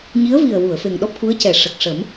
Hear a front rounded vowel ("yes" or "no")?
no